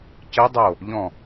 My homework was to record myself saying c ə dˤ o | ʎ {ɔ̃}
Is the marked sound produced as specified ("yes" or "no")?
yes